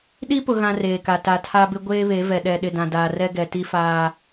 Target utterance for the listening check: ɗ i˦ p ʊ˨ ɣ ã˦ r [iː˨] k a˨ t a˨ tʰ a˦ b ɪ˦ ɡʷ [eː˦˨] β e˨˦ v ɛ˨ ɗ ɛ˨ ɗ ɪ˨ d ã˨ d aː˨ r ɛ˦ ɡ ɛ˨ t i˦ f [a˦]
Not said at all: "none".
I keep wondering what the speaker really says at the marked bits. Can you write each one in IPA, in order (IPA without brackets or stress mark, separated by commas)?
eː˨, eː˦, aː˦